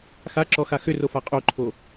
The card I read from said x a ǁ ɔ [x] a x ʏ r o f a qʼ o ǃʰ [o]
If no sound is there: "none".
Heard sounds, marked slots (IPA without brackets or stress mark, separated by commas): x, o